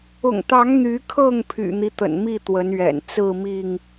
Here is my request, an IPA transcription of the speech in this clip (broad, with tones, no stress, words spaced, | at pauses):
ʊ̰˨˩ŋt̪ɑ˨˦ŋ n̪y˨˦kʰɤ˥˨ŋ pʰy̰˨˩n̪i˦t̪ə̰˨˩nmi˥˨ t̪wə˨˦nɥɛ̰˨˩n t͡sɹ̩˥˨mi˥˨ŋ